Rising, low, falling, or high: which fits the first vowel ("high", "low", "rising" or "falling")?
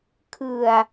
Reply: low